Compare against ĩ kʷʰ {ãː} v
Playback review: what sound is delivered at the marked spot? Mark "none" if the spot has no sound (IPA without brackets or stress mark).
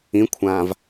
ãː